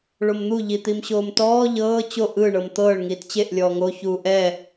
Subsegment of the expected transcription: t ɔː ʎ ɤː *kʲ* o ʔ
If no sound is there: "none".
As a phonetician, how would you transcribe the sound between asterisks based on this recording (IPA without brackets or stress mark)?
t͡ɕ